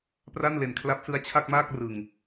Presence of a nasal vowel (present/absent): absent